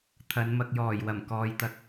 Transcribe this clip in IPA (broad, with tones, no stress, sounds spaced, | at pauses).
t̪ʰ ɐ˨˧ n m ɐ˨ k̚ j ɔː˨˩ j w ɐ˨˩ m k ɔː˨ j t̪ ɐ˨˥ k̚